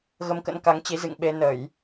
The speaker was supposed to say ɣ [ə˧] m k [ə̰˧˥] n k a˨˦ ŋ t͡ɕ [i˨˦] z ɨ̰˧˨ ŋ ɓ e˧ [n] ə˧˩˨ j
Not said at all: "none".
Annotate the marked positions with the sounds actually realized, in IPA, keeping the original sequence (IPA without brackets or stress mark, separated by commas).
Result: ə˧, ə̰˧˥, i˨˦, n